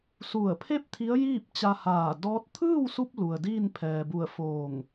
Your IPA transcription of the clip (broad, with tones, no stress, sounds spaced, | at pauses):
s u˧˩ ə̯ pʰ e˥˨ p̚ t̪ʰ i˧˥ ə̯ j iː˥˨ p̚ t͡ɕ a˧ h aː˧˩ d ɔː˧˥ t̚ t̪ʰ ɯː˥˨ w s u˧ p̚ l u˩ ə̯ d iː˥˨ n pʰ ɛː˩ b u˧˩ ə̯ f oː˧˩ ŋ